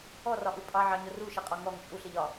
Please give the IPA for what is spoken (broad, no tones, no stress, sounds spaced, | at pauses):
ɔ r ɒ ʔ u pʼ ɑ ʕ ɑ ɲ ʊ r u ʃ ɪ qʼ ɔ ŋ ɔ ŋ t͡ʃʼ u ɬ ɪ ʎ ɒ